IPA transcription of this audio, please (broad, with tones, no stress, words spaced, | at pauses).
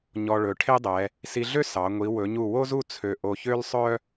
ɲɔ˧ɭɵ˩˧ʈʰe˥dˤɛ˩˧ | si˧ɮø˥ sɑ˩˧ ŋʷi˩˧wɵ˩˧ɲu˧˩ wo˥zu˥˧ t͡sʰø˧˩ ʔo˧çø˥lsˤœ˥